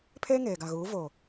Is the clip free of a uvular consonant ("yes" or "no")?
yes